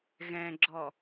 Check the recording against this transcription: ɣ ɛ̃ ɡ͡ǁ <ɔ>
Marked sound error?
no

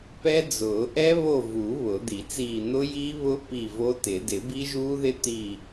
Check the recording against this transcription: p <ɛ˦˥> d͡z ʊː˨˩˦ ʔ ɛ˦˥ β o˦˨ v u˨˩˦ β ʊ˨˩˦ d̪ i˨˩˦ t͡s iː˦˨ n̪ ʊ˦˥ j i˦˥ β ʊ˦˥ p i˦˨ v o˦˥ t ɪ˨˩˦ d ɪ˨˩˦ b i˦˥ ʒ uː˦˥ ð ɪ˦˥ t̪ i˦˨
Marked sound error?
no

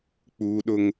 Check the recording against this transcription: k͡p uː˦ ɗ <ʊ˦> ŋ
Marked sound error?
no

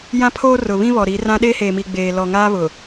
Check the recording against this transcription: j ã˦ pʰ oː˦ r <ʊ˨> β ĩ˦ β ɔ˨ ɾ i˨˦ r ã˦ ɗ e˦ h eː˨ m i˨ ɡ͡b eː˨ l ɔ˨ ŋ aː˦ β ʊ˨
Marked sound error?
no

